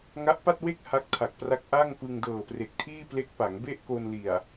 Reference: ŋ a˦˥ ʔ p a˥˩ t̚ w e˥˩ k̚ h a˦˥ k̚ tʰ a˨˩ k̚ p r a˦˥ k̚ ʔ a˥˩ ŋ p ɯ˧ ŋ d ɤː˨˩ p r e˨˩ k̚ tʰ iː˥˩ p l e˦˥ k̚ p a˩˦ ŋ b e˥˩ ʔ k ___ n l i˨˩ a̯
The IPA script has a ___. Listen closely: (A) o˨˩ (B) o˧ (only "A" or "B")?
B